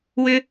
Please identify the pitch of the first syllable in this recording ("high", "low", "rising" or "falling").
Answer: high